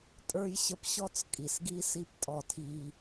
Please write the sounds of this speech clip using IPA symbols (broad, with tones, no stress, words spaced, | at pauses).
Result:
tʼə˞˦jɕə˦p ɕɔ˦t͡skʼi˨sɡi˦ si˦ptʼɔ˦˨tʰiː˦